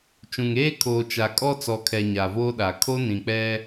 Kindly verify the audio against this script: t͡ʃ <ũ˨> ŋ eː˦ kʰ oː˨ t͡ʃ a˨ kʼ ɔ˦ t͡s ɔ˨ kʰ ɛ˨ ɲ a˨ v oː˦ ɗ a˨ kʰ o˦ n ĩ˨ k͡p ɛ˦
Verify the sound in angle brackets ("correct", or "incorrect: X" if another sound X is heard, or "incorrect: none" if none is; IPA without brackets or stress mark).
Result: correct